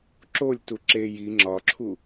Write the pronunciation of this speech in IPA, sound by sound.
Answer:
ǁ o lʲ t u ǁ e j i ŋ͡ǁ ɒ ǁʰ u

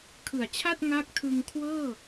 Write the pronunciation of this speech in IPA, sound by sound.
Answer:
kʰ ɯ˨˩ a̯ t͡ɕʰ a˥˩ t̚ ŋ a˦˥ k̚ tʰ ɯ˧ ŋ kʰ w ɤː˥˩

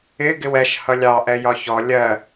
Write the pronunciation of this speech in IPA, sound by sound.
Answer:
ɪ ɡ ɪ w ɛ ʃ h ʌ lʲ ɑ ʔ ɛ j ɒ ç ɔ lʲ ɜ

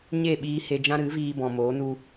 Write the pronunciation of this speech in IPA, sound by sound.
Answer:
ɲ e˦˨ ɓ iː˧ h e˧ d͡ʒ ã˦ ɾ ɨ˨˦ v iː˧ b ɔ̃˨ m oː˨˦ n u˧

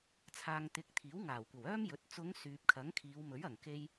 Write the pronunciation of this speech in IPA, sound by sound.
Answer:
t͡sʰ aː˨ ŋ t̪ ɪ˨˥ k̚ t̪ʰ iː˨˥ w ŋ aː˨˩ w kʷ ɐ˨˩ w œː˥ m j ɵ˨˥ t̚ t͡s ʊ˨˧ ŋ s yː˨ p̚ kʰ ɐ˨˥ ŋ kʰ iː˨˧ w m ɵ˨˥ ɥ ɐ˨˩ ŋ k e˧ j

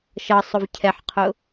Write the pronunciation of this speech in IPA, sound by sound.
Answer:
ʃ ʌ sˤ ʊ v cʰ ɛ ħ qʰ ʊ

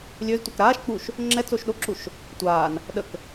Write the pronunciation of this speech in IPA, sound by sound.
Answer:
lʲ ø z tʷ a k ɾ aː ʃ k͡p u ʃ | ŋ͡ǁ ɛ t͡s o ʃ ɗ o ǁ u ʃ | tʷ aː n | ɗ ə k

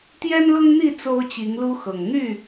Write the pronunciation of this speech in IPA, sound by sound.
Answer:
t̪ j ɛ˦ n l ʊ˦ ŋ n̪ i˥˨ t͡s o˦ ʊ̯ t͡ɕ i˨˦ ŋ l u˦ x ɤ˨˩ ŋ n̪ y˥˨

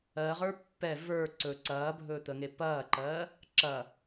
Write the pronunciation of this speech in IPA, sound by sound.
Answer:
ɜ ʁ ə˞ pː ɛ v ə˞ ǀ ɵ ǀ ɐː bʱ ɵː t̪ ə ŋ e p ɐː ǃ ɜ | ǁ ɐ

